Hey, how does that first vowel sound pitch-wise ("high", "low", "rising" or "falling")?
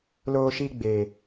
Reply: high